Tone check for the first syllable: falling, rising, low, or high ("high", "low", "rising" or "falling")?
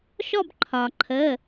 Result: falling